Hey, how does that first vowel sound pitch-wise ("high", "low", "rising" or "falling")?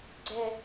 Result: high